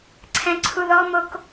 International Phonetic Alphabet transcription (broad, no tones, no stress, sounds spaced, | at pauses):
ǀʰ ɛ̃ ǀʰ u ð ɔ m o k